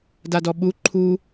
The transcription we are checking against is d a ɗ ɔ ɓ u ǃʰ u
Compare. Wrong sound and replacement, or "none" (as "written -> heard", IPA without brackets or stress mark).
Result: ɗ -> d